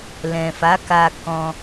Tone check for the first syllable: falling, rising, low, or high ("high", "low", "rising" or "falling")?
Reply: low